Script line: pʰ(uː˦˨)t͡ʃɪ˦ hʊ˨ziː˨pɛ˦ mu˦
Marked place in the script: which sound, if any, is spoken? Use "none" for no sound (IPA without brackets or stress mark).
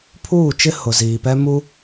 uː˦˨